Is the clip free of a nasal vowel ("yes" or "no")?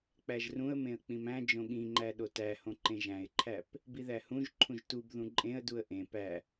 no